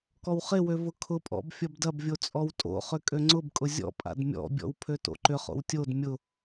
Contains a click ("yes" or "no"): yes